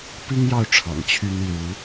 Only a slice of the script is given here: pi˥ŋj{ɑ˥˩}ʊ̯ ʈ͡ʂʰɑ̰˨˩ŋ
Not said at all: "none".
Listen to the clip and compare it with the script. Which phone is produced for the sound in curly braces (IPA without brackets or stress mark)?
ɑ˥˩